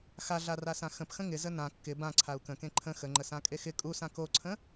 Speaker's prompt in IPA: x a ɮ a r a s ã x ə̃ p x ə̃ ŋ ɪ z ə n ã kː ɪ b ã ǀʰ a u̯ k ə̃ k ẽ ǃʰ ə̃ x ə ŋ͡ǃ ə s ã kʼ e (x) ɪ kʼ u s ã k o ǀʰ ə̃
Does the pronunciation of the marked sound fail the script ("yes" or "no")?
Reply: no